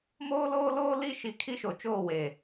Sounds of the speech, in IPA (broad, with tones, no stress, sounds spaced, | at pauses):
m oː˦ l oː˦ l oː˦ l i˦˨ ʃ i˨ kʰ i˦ ʃ o˨ t͡ʃ oː˦˨ w e˨